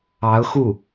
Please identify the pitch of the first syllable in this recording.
rising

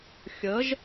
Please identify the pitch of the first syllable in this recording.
rising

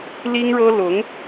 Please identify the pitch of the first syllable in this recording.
high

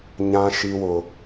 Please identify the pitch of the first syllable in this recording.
high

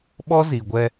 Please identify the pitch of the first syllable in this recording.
high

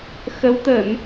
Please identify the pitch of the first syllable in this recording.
rising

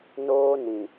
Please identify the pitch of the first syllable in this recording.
high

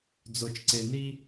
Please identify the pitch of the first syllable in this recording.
low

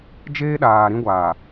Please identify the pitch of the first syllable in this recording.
high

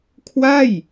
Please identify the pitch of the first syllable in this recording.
falling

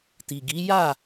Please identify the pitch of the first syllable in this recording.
low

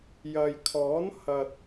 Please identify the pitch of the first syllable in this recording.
low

